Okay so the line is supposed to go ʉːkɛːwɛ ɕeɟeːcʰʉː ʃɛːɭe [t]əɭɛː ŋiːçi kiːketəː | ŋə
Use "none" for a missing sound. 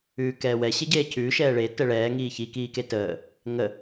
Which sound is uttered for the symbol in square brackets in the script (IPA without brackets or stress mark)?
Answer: t